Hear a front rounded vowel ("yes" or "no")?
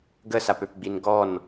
yes